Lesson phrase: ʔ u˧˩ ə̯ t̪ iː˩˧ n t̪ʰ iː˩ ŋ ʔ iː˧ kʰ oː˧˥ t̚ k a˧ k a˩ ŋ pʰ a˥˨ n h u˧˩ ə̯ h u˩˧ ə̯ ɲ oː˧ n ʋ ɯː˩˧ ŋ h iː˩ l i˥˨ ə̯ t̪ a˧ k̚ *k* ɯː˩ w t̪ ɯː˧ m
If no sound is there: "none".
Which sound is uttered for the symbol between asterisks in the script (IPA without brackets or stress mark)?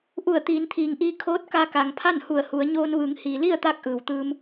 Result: ʔ